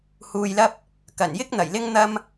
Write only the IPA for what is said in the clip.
h uː˧ j l ɐ˥ p̚ | k ɐ˨˩ n j ɪ˥ k̚ n̪ ɐ˨˩ j l ɪ˥ ŋ n̪ ɐ˥ m

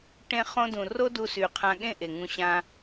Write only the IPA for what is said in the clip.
ʈ ẽ˧ χ õ˧ d ũ˨ r o˦ d u˧ s y˨ qʰ ã˧ ɠ ẽ˦ ʔ e˨ ŋ ũ˧ ɕ ã˦

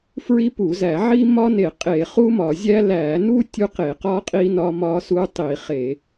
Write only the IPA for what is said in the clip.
f ɹ i˦ p u˧˩˧ z æ˧˩˧ ʕ i˦ m ɒ˦ n e˧˩˧ qʼ e˧˩˧ χ u˦ m ɒ˧˩˧ zʲ æ˦ l æ˧˩˧ n u˦ tʲ u˦ q e˧˩˧ q ɒ˦ qʼ i˦ n ɒ˦ m ɒ˦ s u˦ tˤ i˧˩˧ χ e˧˩˧

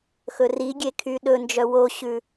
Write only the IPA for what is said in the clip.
x ɵ r i ɡʲ e kʰ y ɗ ɵ n d͡ʒ œ w o ɕ ʉ

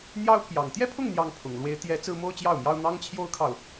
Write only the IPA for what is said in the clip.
n̪ j ɑ˥ ʊ̯ pʰ j ɑ˨˩ ŋ t̪ j ɛ˥˧ pʰ ʊ˥˩ ŋ n̪ j ɑ˥ ŋ pʰ ʊ˨˩ ŋ l w e˥ ɪ̯ t̪ j ɛ˧˥ t͡s ɹ̩˥ m o˥ ʊ̯ t͡ɕ j ɑ˥˩ ʊ̯ m j ɑ˥ ʊ̯ n̪ ɑ˥ ŋ t͡ɕʰ j o˥ ʊ̯ kʰ ɑ˨ ʊ̯

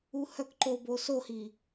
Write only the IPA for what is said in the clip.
u h œ k ǃ o b o s o h i

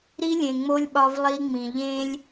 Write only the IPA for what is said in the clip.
ɾ i˦ lʲ ẽ˨ ŋ͡m o˦ lʲ ɓ ɒ˦ v lˠ i˦ ŋ͡m ĩ˨ ʎ ẽ˦ lʲ

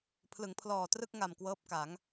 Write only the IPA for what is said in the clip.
pʰ l ɯ˩˦ ŋ pʰ l ɔː˨˩ t r ɯ˥˩ k̚ ŋ a˨˩ m k w ɤː˦˥ p̚ k a˩˦ ŋ

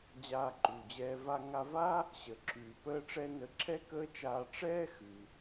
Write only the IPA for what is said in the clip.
d͡ʑ aː˧ ǃ uː˩ d͡ʑ ɛː˧ v a˧ ŋ a˧ v aː˥ | ɕ əː˩ ǁʰ ʉː˩ p əː˧ ʈ͡ʂ ɛ˧ n ə˧ ǁʰ ɛ˥ k əː˥ t͡ʃ aː˧ ʈ͡ʂ ɛː˥ x ʉː˩

